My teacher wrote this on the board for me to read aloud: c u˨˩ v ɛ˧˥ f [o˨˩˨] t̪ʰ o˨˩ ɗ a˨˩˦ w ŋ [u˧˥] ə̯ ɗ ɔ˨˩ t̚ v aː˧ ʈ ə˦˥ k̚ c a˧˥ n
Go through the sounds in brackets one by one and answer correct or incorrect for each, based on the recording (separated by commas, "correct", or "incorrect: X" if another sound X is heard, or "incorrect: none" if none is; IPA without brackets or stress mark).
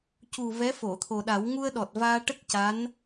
correct, incorrect: u˧